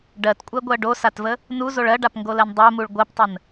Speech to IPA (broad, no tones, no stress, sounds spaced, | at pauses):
ɖ ɜ t kʷʼ ɜ ɡʷ ɜ ɖ o s a t v ə | n u z o ɭ ɜ ɖ a p ŋ ɡ o l ɜ n dˤ ɜ m u ɭ ɡʷ ɜ p tˤ ə n